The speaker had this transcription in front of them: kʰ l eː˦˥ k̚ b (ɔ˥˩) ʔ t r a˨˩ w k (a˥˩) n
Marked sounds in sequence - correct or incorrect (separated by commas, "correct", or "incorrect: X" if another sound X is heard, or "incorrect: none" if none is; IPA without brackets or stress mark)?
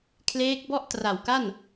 correct, correct